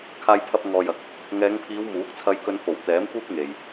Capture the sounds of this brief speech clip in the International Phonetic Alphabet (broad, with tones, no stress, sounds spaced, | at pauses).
kʰ aː˧ j pʰ ɐ˧ p̚ ŋ ɔː˨ j ɐ˨ k̚ | ŋ ɛː˨˧ ŋ pʰ iː˨˧ w m uː˨˥ k̚ t͡sʰ ɐ˧ j k ɵ˧ n f o˨˩ w t̪ ɛː˨˥ m kʷ iː˥ k̚ ŋ e˨ j